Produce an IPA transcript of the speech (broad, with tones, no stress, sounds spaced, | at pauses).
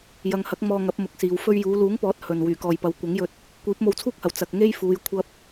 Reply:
j ɐ˨˧ ŋ h ɐ˨˥ k̚ m ɔː˧ ŋ ɐ˨˥ p̚ m ʊ˨˥ k̚ s iː˨˧ w f ɵ˧ ɥ j uː˨˧ l uː˨˥ ŋ p ɔː˨˥ t̚ h ɵ˨ n w yː˨˩ k ɔː˨ j p ɐ˨˥ w kʷ ɐ˨˥ ŋ j ɵ˧ t̚ | kʷ iː˨˥ p̚ m o˧ w t͡sʰ uː˥ k̚ h ɐ˨˩ w t͡s ɐ˨ k̚ ŋ e˥ j f uː˨˧ j kʷʰ ɐ˥ p̚